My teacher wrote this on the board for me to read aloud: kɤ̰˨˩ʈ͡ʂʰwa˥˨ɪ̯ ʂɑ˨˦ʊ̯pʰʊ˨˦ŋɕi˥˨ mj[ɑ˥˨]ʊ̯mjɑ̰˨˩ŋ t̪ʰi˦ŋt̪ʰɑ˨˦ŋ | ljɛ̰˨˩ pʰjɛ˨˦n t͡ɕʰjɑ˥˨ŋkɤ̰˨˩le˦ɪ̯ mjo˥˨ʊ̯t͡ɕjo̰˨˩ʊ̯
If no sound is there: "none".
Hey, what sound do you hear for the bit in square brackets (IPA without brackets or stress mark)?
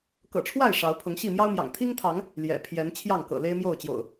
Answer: ɑ˦